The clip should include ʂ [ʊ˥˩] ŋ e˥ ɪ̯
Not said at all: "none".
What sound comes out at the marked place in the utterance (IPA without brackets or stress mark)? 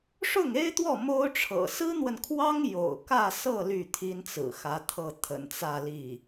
ʊ˥˩